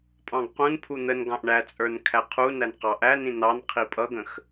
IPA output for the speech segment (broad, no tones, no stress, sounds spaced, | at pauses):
pʼ ɑ̃ ɡ q ũ n pʰ u n̪ ə n ɡ ɑ̃ ʔ ɳ æ t͡sʼ ə˞ n kʰ æ qʰ u n æ n q ɑ ʔ æ n ĩ n ɑ n qʰ i pʼ ʌ ɡ ə̃ x